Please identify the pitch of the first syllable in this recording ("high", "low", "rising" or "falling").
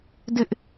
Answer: high